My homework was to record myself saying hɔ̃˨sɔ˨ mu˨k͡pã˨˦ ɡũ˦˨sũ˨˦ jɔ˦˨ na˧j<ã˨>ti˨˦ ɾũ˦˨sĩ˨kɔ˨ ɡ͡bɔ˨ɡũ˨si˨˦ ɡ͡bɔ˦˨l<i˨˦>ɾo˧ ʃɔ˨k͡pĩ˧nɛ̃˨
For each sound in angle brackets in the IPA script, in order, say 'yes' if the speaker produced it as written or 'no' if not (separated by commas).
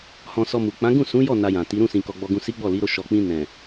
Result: yes, yes